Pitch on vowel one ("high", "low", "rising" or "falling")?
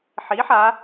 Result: rising